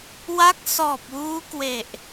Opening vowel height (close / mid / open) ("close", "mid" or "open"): open